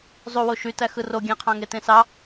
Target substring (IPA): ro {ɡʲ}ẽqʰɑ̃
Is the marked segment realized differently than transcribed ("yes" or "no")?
no